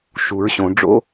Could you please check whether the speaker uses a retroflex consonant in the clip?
yes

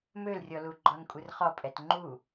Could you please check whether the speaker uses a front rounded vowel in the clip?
yes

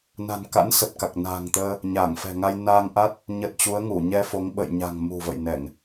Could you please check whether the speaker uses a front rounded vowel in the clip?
no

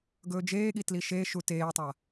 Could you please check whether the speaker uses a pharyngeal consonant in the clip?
no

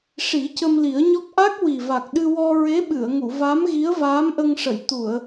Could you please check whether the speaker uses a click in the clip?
no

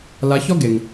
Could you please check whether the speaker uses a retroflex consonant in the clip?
no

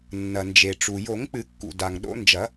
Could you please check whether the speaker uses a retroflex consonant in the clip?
yes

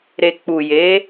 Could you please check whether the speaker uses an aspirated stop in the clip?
no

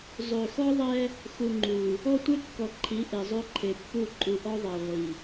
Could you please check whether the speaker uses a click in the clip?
yes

